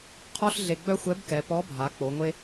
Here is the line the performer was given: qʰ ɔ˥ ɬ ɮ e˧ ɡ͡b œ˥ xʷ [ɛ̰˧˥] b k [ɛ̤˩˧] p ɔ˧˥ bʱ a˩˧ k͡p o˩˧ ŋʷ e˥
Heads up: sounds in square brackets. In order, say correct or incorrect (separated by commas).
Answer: incorrect, incorrect